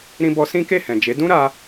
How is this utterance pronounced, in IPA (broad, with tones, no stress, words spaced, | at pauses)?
ɾĩ˧bɔ˧ sĩ˦ke˦˨hɛ̃˨d͡ʒe˨˦ dũ˦ɾa˧